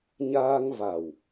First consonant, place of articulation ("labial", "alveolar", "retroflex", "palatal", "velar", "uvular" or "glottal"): palatal